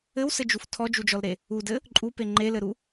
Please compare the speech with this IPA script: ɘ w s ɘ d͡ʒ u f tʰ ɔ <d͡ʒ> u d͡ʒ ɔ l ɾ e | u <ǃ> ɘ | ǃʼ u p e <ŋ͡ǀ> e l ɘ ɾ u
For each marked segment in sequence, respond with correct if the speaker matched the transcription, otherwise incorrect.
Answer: correct, incorrect, incorrect

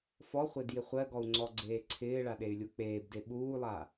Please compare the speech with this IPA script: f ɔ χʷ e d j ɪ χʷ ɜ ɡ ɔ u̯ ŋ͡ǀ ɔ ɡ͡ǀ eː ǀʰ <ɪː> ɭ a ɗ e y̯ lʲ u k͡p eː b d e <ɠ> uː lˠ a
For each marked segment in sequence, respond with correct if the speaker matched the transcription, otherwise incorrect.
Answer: correct, incorrect

